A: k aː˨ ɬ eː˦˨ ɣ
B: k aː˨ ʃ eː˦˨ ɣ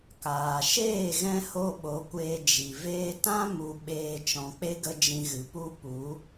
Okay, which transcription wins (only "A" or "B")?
B